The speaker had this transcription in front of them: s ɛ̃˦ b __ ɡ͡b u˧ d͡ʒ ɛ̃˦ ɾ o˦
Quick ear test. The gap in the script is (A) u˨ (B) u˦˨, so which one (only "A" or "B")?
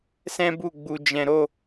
B